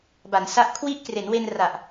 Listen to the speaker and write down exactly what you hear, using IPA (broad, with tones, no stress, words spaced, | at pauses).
ba˩˦nsa˦˥ʔ kʰwi˦˥ʔkre˩˦nwe˧nra˨˩ʔ